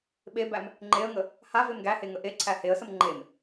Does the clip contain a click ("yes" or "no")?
yes